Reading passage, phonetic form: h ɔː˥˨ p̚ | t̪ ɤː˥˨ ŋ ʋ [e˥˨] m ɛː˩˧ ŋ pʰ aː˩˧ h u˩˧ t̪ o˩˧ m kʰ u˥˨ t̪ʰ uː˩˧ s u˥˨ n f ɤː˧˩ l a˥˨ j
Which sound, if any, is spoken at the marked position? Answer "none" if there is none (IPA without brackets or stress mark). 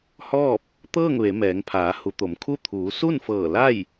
e˩˧